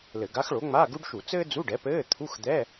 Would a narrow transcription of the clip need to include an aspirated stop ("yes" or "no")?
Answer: yes